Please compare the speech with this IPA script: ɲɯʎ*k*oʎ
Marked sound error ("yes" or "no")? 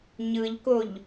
no